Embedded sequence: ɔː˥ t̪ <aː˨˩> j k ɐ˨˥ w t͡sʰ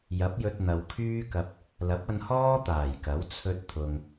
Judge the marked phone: correct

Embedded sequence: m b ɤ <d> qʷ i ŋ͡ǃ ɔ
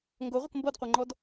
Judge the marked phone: correct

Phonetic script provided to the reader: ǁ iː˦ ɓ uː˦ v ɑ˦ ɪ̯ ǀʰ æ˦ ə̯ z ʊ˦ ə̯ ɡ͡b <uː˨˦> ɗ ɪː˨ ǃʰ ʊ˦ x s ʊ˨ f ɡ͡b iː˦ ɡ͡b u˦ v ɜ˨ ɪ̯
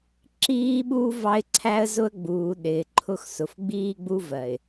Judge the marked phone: incorrect: uː˨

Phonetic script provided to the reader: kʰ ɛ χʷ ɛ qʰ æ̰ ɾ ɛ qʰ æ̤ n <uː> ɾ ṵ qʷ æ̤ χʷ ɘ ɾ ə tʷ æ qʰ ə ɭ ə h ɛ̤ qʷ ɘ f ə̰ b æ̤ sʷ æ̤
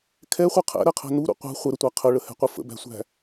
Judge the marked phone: incorrect: u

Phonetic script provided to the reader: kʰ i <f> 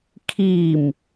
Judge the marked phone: incorrect: m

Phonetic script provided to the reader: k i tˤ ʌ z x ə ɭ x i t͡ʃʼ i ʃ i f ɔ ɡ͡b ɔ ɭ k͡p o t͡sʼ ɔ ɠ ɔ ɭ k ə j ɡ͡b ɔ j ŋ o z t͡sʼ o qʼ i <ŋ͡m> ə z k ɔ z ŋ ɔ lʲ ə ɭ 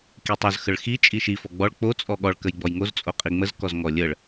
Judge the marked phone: correct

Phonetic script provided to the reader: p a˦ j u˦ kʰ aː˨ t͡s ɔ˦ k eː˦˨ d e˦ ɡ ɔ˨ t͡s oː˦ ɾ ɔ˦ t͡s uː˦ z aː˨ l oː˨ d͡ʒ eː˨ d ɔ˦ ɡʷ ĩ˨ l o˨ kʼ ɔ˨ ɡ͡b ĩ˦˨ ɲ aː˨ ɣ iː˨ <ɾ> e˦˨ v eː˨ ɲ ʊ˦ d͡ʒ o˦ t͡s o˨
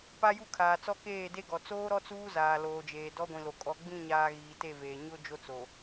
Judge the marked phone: incorrect: t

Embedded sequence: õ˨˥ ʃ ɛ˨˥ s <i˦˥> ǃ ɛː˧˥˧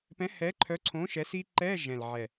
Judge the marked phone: correct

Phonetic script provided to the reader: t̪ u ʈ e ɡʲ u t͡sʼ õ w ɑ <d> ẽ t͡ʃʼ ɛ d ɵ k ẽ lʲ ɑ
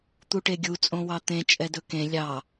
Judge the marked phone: incorrect: t̪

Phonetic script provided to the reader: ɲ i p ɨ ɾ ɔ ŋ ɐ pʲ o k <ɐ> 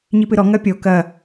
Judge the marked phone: correct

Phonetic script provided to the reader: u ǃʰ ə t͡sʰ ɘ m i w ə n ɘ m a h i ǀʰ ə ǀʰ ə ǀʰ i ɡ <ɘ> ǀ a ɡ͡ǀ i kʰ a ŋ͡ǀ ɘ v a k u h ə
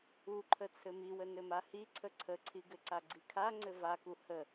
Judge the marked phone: correct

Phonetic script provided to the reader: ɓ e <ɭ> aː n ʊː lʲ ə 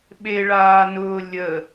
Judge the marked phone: correct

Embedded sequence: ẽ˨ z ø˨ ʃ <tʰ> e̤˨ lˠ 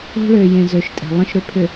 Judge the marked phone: incorrect: tʼ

